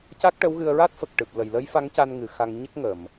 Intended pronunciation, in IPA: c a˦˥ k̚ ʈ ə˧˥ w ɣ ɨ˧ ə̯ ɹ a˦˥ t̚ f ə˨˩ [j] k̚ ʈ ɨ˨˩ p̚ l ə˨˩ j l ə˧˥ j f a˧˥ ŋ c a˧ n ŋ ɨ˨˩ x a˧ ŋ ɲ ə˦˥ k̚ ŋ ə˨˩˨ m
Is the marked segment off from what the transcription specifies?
yes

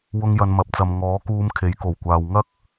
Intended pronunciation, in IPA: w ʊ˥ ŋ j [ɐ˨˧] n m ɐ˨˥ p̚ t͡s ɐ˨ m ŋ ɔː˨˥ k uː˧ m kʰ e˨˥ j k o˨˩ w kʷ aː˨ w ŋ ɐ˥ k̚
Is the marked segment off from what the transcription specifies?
yes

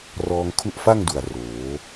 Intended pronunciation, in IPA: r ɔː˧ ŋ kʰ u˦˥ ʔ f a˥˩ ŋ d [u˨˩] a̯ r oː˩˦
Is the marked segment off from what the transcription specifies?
no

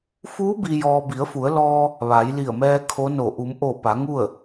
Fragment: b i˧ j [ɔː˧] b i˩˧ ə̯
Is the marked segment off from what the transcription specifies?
no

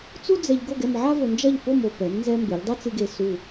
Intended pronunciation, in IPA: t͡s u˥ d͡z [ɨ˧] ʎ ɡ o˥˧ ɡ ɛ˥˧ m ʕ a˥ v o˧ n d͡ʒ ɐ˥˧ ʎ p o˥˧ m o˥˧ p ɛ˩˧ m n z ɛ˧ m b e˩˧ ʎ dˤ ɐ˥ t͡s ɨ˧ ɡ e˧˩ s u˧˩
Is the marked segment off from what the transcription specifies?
yes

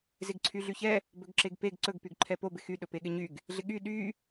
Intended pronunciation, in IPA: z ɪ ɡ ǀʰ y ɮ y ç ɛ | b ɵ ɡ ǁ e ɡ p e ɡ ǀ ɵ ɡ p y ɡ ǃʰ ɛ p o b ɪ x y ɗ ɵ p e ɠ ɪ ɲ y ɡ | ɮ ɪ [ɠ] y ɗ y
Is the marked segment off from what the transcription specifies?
no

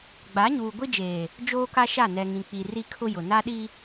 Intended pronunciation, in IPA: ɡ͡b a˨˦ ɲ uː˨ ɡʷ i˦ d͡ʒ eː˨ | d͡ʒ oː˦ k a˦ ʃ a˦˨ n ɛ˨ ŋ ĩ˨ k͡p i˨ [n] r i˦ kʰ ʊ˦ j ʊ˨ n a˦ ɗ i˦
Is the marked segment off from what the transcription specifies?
yes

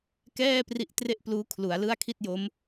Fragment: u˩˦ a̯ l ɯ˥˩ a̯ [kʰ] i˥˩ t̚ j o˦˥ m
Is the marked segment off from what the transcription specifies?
no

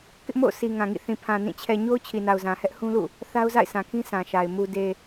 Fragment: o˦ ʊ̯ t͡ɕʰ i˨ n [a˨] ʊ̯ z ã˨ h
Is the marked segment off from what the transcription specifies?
no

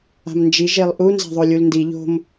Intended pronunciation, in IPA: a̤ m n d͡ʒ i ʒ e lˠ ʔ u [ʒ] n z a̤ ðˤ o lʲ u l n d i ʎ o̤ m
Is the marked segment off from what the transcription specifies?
yes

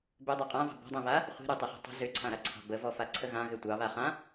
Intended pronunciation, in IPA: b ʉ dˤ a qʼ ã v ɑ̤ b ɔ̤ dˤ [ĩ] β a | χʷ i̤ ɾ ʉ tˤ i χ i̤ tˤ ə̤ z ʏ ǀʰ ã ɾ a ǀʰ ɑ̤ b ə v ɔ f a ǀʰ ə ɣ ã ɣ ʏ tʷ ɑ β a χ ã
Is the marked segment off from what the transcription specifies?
no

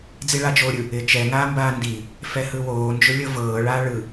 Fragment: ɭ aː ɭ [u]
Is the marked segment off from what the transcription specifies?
yes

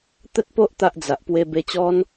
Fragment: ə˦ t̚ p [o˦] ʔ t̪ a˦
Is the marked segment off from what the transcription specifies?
no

